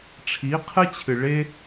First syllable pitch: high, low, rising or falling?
rising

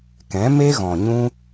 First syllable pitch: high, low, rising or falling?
rising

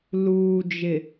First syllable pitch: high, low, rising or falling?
low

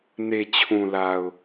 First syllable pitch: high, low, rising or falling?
low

